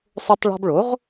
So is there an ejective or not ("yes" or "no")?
no